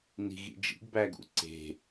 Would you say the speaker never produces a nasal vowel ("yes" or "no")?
yes